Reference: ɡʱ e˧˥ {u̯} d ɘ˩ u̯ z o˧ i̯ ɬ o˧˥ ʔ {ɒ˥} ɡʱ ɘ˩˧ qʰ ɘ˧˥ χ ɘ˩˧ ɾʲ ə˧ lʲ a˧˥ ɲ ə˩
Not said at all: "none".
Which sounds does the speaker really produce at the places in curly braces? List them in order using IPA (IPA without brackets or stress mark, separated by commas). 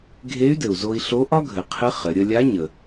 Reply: y̯, ɒ˥